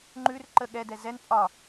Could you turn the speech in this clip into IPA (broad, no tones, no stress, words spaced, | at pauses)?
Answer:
ŋ͡ǃʉr ǃə ɠɛdɛ zɛn pʼɒ